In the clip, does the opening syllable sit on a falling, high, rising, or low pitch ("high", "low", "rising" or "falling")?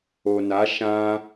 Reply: low